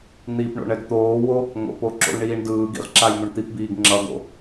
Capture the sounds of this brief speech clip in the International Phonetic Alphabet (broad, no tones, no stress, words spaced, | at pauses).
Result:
n̪ipɳo̰ɳ ɛɡt̪oːwo | ŋo̰po ǁo̰lɳiːɳdɯːɡḭʁ ǁajn̪uɳt̪ipbiːɡ ŋ͡ǁʌɡo̰